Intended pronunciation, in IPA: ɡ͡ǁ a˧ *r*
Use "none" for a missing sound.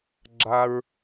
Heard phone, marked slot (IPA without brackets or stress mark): ɹ